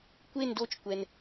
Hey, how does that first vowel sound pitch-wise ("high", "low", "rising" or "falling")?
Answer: falling